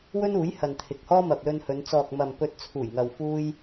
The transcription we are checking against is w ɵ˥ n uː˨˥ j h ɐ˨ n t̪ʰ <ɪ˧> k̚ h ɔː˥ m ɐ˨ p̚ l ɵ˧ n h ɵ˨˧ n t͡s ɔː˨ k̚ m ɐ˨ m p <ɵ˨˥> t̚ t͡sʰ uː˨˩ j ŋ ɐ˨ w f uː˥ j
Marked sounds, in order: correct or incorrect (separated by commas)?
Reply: incorrect, correct